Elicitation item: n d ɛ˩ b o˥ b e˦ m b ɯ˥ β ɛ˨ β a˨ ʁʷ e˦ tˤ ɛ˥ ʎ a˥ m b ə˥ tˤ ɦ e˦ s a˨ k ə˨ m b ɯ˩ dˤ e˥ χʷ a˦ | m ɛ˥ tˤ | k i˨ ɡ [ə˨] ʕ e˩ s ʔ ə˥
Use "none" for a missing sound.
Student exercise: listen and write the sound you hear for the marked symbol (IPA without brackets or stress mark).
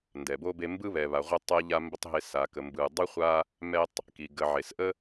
ə˨